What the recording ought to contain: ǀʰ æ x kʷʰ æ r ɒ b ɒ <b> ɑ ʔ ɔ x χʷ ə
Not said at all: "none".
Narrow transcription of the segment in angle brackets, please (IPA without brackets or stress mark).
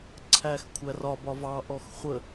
v